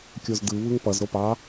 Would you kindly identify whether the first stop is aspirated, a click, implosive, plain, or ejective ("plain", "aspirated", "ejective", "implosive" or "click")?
plain